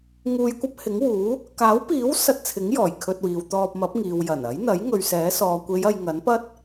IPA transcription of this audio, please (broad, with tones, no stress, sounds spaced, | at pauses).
ŋ uː˧ j kʷ ɐ˥ p̚ h ɪ˨˥ ŋ w uː˨˥ | k aː˨˥ w p iː˨˥ w s ɐ˧ t̚ t͡sʰ ɪ˨˥ ŋ j ɔː˨˩ j kʰ ɵ˧ t̚ w iː˨ w t̪ ɔː˧ p̚ m ɐ˨˥ p̚ ŋ iː˨ w j ɐ˨˩ n ɐ˨˥ j n̪ ɐ˨˥ j ŋ ɵ˨ ɥ s ɛː˨˥ s ɔː˨ kʷ e˨˧ j ɐ˨ j ŋ ɐ˨˥ n p ɐ˥ t̚